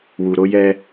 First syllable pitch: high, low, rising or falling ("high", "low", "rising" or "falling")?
low